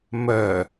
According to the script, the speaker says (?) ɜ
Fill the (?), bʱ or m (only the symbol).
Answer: m